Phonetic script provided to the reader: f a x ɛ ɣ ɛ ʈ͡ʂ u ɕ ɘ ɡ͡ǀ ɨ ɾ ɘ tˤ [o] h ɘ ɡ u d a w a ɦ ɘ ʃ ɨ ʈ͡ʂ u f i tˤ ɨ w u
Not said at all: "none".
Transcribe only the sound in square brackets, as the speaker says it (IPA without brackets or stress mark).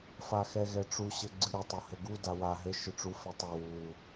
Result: o